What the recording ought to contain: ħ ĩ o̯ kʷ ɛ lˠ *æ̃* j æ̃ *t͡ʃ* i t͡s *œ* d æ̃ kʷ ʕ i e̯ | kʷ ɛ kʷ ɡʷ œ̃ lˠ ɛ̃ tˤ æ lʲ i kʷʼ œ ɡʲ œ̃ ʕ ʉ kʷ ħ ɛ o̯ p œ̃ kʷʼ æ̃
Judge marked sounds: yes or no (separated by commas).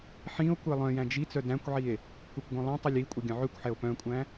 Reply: no, no, yes